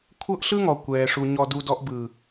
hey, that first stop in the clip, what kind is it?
aspirated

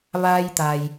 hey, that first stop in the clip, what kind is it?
plain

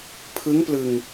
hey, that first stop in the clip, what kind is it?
aspirated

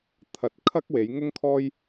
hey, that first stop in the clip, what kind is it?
aspirated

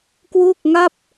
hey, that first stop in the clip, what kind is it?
plain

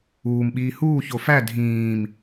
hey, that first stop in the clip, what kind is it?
implosive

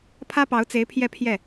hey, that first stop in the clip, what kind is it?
aspirated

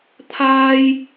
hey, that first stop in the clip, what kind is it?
aspirated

